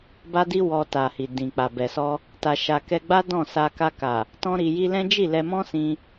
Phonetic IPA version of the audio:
b a˦ d i˦ w ɔ˧ t a˨ h i˨ d ĩ˨ k͡p a˨ b ɛ˨ s ɔ˧ | t a˧ ʃ a˧ k ɛ˦ ɡ͡b a˦ d ɔ̃˦˨ s a˧ k a˧ k a˨ | t ɔ̃˦ ɾ i˧ j i˦ l ɛ̃˦ d͡ʒ i˦˨ l ɛ˧ m ɔ̃˦ s ĩ˧

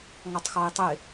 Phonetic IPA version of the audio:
ŋ ɒ tˤ x ɒ ɪ̯ tˤ ə ɪ̯

